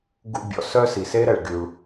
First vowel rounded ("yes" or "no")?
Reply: yes